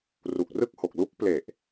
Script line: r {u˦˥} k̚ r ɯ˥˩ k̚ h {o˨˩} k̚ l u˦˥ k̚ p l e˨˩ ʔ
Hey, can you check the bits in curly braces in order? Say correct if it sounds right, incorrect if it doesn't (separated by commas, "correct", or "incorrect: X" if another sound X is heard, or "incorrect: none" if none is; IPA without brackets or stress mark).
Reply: incorrect: u˨˩, correct